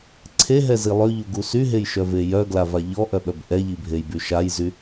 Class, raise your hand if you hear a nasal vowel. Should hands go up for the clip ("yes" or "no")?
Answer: no